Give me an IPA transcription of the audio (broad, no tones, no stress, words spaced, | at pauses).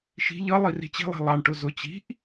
ʃi̤ ʎʌ lˠiri̤t͡ɕi̤lˠi̤ lˠɑɳʈʊ zʊ t͡ɕi̤ʔ